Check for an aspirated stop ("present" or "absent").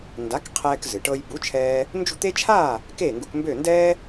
present